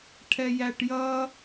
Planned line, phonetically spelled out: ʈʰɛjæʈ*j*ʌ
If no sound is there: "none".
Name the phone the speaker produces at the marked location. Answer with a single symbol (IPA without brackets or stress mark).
j